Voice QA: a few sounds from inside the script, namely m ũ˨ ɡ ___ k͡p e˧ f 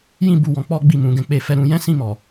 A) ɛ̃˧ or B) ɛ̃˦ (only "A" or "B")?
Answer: A